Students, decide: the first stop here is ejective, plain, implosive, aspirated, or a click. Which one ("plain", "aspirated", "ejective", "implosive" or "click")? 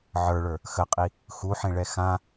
ejective